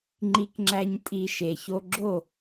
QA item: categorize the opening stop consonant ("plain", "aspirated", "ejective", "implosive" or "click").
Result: click